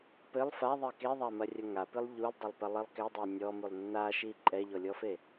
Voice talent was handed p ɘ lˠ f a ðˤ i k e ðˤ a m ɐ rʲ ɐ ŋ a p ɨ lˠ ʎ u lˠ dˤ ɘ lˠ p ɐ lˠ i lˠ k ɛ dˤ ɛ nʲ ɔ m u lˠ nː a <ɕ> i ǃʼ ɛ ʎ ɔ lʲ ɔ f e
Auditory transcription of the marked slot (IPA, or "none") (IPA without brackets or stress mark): ʃ